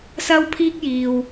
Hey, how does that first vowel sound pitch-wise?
high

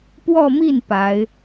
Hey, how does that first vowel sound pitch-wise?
falling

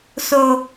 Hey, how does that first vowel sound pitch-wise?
high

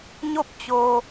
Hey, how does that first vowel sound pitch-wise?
falling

